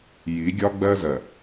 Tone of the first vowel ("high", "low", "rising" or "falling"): rising